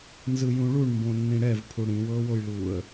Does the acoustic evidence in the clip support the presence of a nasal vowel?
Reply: yes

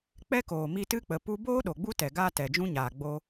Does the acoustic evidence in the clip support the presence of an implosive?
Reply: yes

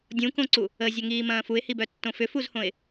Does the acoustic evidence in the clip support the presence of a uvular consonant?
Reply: no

